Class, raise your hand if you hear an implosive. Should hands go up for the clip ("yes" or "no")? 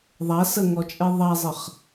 no